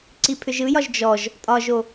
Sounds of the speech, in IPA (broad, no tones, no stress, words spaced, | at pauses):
ǀipʰʏʒɯjɒʒ d͡ʒɔʒ | tʼɒʒo